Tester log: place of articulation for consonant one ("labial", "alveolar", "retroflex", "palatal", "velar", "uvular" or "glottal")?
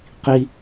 uvular